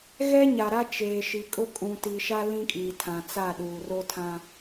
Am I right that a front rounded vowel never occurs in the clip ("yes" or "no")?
yes